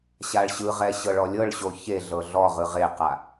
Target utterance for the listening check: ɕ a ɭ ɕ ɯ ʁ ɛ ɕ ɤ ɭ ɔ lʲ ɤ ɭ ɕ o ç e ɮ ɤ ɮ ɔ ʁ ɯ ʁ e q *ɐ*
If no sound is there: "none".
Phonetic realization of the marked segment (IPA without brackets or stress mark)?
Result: a